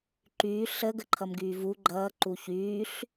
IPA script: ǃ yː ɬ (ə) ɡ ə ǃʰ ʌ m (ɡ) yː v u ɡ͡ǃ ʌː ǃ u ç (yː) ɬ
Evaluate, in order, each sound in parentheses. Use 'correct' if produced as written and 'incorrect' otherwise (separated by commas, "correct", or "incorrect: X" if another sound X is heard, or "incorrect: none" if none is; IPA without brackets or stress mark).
correct, correct, correct